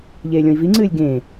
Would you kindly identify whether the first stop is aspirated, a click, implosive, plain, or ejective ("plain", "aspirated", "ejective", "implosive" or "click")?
click